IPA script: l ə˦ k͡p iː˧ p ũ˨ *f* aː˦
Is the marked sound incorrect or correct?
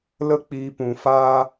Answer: correct